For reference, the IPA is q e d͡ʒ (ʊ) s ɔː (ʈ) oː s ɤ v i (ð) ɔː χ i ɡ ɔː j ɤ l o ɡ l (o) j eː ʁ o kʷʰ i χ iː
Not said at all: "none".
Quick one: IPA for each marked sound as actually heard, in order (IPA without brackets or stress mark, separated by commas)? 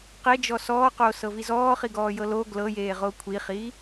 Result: ɔ, q, z, ɤ